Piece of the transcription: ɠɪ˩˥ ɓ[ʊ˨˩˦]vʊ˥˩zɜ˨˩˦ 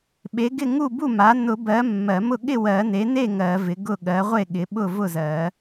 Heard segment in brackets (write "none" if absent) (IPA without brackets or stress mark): ʊ˥˩